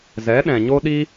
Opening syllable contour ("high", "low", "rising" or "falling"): rising